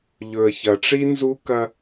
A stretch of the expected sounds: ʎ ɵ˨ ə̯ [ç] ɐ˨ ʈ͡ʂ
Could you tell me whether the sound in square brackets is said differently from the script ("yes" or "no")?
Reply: no